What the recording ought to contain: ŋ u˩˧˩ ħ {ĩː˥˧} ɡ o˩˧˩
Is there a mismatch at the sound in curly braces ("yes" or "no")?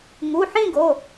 yes